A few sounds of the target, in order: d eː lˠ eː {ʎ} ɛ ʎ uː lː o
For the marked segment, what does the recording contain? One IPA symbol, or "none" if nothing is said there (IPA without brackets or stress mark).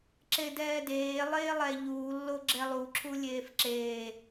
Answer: lˠ